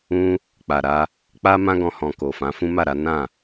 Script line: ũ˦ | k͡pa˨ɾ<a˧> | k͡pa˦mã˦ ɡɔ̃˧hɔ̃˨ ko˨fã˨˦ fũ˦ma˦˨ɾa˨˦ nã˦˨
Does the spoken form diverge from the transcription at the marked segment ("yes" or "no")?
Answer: no